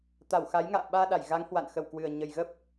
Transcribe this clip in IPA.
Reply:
t̪ a˧˩ w x a˨˦ j ŋ a̰ː˧˨ ɓ aː˧ ɗ a˧˩ j ɣ a˨˦ ŋ h w a̰˧˨ n x ə˧˩ w k w ɨ˨˩ ə̯ ɲ ə˨˩ j ɣ ə˦˥ p̚

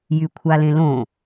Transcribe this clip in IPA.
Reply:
j y kʷʰ a l ẽ l õ

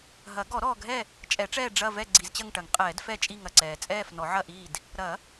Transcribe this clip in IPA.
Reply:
ɦ ɐ˨˩˦ ɡ ɔ˨˩˦ ɾ ɔː˨ ɡʱ ɛ˦˨ | t͡ʃʼ ɛ˨˩˦ ʈ͡ʂ ɛː˦˨ ɖ͡ʐ ɐ˦˨ v ɛ˦˨ ɡ͡ǀ i˨ z t͡ɕ ɐ˦˨ ŋ ʈ ɐ˨˩˦ ŋ qʼ ɛː˨˩˦ d f ɛ˦˨ t͡ʃʼ i˦˨ ŋ ɐ˨ ǀ ɛː˨ t͡sʼ ɛː˦˨ f n ɔ˨˩˦ ʕ ɐ˦˨ ʔ iː˦˨ d | ɾ ɐ˨˩˦

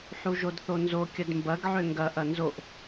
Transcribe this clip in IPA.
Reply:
ħ u ʒ o d θ o n z o kʲ ə d m b ɐ ɡ ʕ ø ŋ ɡ ɐ ʔ ɐ n z o ʔ

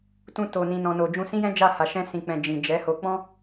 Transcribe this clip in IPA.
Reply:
t ũ˧ t o˨ n ĩ˨ n ɔ̃˨ n o˨ d͡ʒ ũ˧ s ĩ˦ j ɛ̃˦ d͡ʒ a˦˨ h a˨ ʃ ɛ̃˧ s ĩ˨ k͡p ɛ̃˨ d͡ʒ ĩ˨ d͡ʒ ɛ˨˦ h o˧ k͡p ɔ̃˦

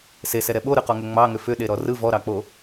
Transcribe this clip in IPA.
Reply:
s e s ɛ ɾ ɛ ɓ o ɾ ɯ q ɔ ŋ ʏ ŋ͡m ɑ ŋ ʏ f ʏ ɗ e ɾ ɔ r ɯ v ɔ ɾ ɑ k͡p o

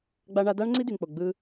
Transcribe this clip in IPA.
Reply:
ɡ͡b a˧ ɳ a˧ d a˦ ɳ ŋ͡ǀ i˦ d y˨ ŋ k͡p o˨ ɡ͡b ɯ˧

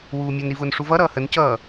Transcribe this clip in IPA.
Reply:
w uː mʲ ʌ n ɾ i v ʊː n ʂ u v ʌ ɾ ʌː h ə n c ʌː

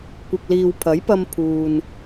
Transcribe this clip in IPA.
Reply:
kʷ ɪ˨ k̚ l iː˨ w pʰ ɐ˨˥ j p ɐ˧ m pʰ uː˨ n

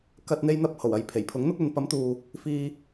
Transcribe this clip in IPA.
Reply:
k ɐ˨ t̚ n̪ e˧ j n̪ ɐ˧ p̚ h o˨˩ w ɐ˨ j pʰ e˨˩ j pʰ ʊ˨˥ ŋ n̪ ʊ˥ k̚ ɵ˧ n p ɐ˨˥ m t̪ uː˨ | f iː˧

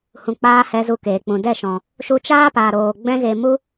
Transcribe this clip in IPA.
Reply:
h ũ˨ k͡p aː˧ h ɛ˧ z u˧ k eː˨ k͡p ũ˨ d ɛ˦˨ ʃ ɔ̃˨ | ʃ u˧ t͡ʃ aː˦ p aː˨ ɾ oː˨ ɡ͡b ɛ̃˧ ɣ e˨ m u˦

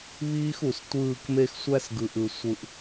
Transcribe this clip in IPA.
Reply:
β iː˦ x u˨ s tʷ ɯː˦˨ k m e˦ x sʷ æ˦ s ɡ ɯ˨ ʔ ɯ˨ sʷ ɯ˨ ʔ

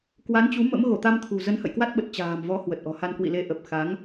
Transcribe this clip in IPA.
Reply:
k w a˨˦ n t͡ɕ u˨˦ m ə̰˧˥ m ɣ o˧˩ t̪ a˧ m t̪ʰ ṳ˨˩ z ə˨˦ n h ə̰˧˨ j k w a˦˥ t̚ ɓ ə˨˩ t̚ t͡ɕ a̤ː˨˩ m v ɔ˨˦ h w ə˨˩ t̚ ʔ ɔ̤˨˩ h a˧ n k w ḭ˧˨ l e˨˦ ʔ ə˨˩ p̚ x a˨˦ ŋ

